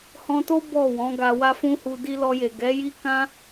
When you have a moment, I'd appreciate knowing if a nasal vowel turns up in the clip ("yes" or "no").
yes